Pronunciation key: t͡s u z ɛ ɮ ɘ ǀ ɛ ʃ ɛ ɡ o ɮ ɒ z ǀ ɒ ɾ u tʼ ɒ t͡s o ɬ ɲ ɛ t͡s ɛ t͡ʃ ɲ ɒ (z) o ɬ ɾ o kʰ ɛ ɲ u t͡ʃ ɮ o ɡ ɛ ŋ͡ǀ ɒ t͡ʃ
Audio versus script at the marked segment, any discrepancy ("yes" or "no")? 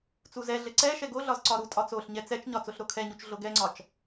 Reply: yes